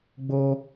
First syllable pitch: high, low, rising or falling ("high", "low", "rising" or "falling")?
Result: high